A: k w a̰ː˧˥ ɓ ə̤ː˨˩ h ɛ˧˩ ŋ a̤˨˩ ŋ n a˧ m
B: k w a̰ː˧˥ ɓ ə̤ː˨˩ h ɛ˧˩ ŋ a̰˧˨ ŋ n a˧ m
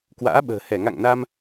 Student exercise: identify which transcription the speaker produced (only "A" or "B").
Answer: B